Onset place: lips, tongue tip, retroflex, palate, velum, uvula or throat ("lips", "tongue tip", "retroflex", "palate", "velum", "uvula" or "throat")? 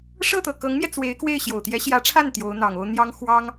retroflex